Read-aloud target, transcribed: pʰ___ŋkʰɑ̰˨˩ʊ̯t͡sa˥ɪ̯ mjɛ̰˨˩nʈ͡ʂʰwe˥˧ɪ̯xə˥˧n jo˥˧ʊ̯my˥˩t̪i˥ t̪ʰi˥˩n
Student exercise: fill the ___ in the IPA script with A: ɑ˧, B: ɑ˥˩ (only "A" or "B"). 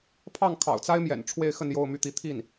B